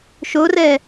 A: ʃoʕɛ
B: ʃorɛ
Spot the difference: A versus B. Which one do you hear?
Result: B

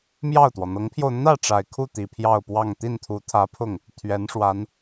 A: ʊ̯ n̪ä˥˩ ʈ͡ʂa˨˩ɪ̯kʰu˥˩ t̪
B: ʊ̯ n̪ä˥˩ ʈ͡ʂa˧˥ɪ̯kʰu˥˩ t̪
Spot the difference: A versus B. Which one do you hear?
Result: A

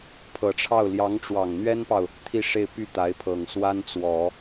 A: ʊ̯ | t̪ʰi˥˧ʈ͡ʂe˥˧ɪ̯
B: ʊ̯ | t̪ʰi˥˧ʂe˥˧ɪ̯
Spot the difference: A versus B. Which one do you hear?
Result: B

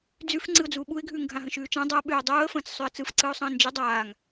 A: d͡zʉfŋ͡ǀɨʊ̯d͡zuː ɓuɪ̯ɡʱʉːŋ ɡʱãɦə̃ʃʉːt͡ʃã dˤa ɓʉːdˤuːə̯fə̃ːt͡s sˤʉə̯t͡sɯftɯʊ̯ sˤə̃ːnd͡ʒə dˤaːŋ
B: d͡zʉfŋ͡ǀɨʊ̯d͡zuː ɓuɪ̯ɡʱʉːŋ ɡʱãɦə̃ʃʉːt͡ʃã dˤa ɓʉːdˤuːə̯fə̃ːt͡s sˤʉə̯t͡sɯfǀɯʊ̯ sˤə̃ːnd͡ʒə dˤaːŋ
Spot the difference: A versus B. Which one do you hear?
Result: B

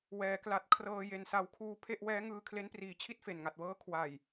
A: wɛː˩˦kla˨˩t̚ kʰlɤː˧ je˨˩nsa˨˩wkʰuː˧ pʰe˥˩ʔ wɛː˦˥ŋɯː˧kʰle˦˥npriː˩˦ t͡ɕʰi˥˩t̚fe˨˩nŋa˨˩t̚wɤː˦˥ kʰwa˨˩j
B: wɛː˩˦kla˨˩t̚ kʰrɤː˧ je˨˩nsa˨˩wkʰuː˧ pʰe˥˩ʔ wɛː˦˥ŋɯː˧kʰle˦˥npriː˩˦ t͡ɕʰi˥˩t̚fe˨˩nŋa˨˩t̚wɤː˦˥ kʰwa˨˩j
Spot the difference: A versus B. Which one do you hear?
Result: B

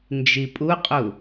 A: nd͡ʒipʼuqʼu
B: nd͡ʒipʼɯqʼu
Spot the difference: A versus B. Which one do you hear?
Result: A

